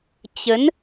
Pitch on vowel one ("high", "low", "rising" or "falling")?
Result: rising